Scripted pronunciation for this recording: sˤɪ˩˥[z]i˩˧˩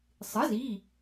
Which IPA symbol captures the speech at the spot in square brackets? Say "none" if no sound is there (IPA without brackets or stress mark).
z